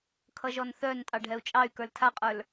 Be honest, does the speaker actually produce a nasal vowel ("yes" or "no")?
no